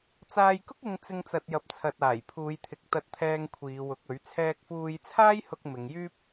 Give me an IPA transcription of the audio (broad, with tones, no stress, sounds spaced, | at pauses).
t͡s aː˧ j k ʊ˥ k̚ ɪ˧ ŋ t͡s ɪ˧ ŋ t͡s ɐ˨ t̚ j ɐ˨ p̚ t͡sʰ ɐ˨ t̚ aː˨˩ j pʰ uː˨˧ j t̪ʰ ɪ˨ k̚ t̪ ɐ˨ t̚ t̪ʰ ɛː˨ ŋ kʷʰ iː˨˧ w ʊ˨˥ k̚ ɵ˨˥ ɥ t͡sʰ ɛː˧ k̚ f uː˧ j t͡sʰ aː˥ j h ʊ˧ k̚ m ɪ˨˧ ŋ j yː˥ p̚